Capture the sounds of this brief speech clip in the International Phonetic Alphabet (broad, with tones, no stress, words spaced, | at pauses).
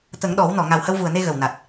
t̪ə˨˩˦ŋɗɔ˨˩˦wnɔ˨˩˨ ŋa˨˩whə˧wvu˨˩ə̯ne˧ ɣə˨˩w na˨˩t̚